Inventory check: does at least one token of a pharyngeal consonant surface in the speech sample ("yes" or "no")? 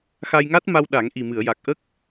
no